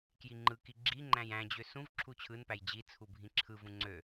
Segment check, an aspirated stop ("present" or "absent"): present